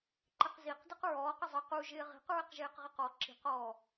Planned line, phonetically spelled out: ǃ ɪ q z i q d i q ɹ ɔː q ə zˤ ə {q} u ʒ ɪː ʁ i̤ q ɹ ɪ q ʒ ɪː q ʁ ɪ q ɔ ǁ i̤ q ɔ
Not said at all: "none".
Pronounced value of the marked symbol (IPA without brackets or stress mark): q